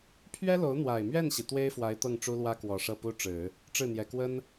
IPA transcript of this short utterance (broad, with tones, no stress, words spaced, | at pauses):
pʰɥɛ˥lo˧˥ʊ̯ n̪wa˨˩ɪ̯mɥɛ˥˩nɕi˩ t̪we˥ɪ̯fwa˧˥ɪ̯ t̪ɤ˥˩ŋʈ͡ʂu˥lwä˥kwɔ˨˩ ʂɤ˥˩pu˥ʈ͡ʂɻ̩˨˩˦ | ʈ͡ʂɻ̩˥˩n̪jɛ˨˩kwə˥n